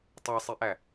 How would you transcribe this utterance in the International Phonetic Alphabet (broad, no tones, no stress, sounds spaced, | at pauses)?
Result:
tˤ æ sˤ i ʔ æ